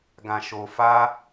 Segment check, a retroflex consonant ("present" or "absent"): absent